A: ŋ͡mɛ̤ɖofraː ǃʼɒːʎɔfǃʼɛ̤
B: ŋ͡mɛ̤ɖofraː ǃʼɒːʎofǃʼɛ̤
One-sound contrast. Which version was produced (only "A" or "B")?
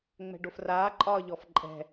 A